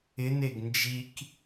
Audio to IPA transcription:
ɪneɡ nd͡ʒik

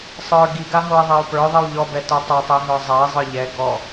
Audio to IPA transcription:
sˤə˞ ɡiɡaɦoi̯ ðˤeu̯pə˞ ðˤiwʎɔbɛ tə˞tˤɛtˤiɦə˞ zˤai̯zˤə˞ ʎɛ ɡɔ

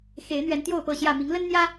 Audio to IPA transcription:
xe˨˦ɪ̯ n̪ɥɛ˨˦nt̪jo˥˨ʊ̯pɤ˥˨ɕjä˥˨ mi˨˦ŋlə˦nn̪jä˦

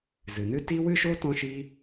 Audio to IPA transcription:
zɨ˨nɨ˦ ti˦wɨ˦ʃo˦ tɔ̃˦ʃi˦

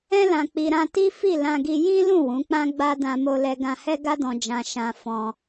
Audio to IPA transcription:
ɛ̃˧lã˨k͡pi˨ ɾã˧ti˦ fi˦˨lã˧ɡi˧ jĩ˦lũ˦˨ wũ˨˦k͡pã˦ɡ͡ba˦ dã˧mo˧lɛ˧ ɡã˧hɛ˦ɡa˦dɔ̃˧ d͡ʒã˧ ʃã˧ fɔ̃˧

